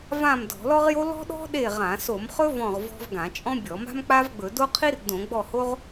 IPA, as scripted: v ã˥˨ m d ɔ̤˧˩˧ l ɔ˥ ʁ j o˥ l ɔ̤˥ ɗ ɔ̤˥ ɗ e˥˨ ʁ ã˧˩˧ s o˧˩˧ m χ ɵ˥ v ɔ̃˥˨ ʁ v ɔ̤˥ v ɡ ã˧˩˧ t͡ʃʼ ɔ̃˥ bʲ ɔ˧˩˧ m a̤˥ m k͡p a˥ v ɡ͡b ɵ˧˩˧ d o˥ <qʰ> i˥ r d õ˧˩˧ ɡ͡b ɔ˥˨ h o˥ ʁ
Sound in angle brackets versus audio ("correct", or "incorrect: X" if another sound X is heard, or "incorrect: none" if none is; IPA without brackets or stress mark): correct